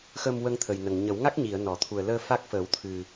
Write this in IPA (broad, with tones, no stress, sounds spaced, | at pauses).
x ə˧ m w ə˧ ŋ t̪ʰ ə˨˩ j n ə˨˩ ŋ ɲ ə˨˩˦ w ŋ a˦˥ k̚ ɲ i˨˩˨ ə̯ n ɔ˨˩˨ t̪ʰ u˨˩ ə̯ l əː˧ f a˦˥ k̚ f ə˨˩˦ w t̪ʰ ɨ˨˩